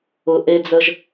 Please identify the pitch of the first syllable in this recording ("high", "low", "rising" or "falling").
low